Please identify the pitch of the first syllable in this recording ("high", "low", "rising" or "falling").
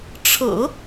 low